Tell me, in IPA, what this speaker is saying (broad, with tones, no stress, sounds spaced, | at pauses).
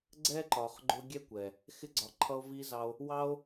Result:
ɡ͡ǀ ɛ˦ ǃ ɒ˨ χ ɡ͡ǃ ʊ˧ ɡʲ ɛ˦ kʷ ɛ˨ | x ɪ˧ ɡ͡ǀ ɒ˨ ǃʰ ʌ˧ o̯ v i˧ z ɑ˦ o̯ | w ɑ˦ o̯